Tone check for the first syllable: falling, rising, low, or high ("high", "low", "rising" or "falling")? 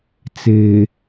low